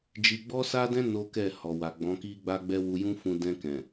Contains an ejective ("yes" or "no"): no